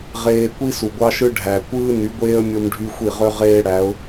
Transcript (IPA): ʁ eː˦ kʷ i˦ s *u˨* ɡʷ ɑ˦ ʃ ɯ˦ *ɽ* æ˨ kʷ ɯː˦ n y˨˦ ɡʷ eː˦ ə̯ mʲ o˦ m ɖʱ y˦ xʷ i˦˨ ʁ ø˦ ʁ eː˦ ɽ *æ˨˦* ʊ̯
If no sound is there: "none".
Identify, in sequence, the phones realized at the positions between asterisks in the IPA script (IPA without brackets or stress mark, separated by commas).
u˨, ɖʱ, æ˨˦